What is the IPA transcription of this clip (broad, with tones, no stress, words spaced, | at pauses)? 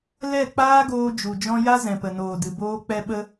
lɛ˦˨k͡paː˦ɡoː˧ d͡ʒu˨d͡ʒɔ̃˦ ja˦ zɛ̃˨pə˨noː˨ dɨ˨ boː˦ k͡pɛ˦ɓə˦